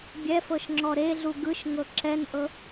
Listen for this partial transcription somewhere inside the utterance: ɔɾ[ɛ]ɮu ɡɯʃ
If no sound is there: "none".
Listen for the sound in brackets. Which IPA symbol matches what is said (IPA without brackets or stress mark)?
e